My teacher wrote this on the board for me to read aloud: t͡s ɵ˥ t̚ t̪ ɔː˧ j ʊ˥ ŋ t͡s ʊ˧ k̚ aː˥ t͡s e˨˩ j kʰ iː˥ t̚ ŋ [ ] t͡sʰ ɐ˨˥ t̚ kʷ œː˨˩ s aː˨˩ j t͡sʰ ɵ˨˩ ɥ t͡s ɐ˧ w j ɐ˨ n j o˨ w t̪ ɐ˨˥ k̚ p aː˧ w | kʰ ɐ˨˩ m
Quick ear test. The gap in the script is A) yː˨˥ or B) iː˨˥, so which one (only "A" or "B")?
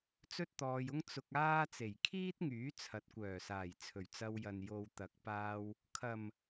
A